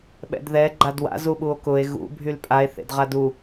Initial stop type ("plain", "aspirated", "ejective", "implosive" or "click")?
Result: implosive